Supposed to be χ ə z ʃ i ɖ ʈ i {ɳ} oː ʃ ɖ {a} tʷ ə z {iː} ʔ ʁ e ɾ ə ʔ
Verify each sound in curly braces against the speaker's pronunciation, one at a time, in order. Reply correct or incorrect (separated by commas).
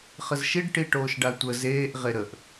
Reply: incorrect, correct, incorrect